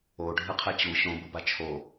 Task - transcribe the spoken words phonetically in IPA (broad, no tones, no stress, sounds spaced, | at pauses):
o ɖʱ ɯ qʰ ɛ t͡ɕ u ɕ õ b ɯ b a t͡ʃʰ o